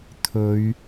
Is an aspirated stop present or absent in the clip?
present